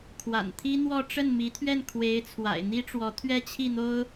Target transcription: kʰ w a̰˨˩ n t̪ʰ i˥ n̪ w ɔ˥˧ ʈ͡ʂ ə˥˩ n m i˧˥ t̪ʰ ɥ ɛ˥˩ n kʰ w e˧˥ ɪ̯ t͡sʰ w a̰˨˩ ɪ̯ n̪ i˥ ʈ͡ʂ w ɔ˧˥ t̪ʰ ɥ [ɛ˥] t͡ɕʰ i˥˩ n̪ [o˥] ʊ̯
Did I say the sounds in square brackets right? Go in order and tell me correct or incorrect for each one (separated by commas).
correct, correct